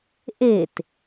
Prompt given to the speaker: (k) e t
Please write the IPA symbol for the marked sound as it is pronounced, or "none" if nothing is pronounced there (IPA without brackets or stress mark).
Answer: ʔ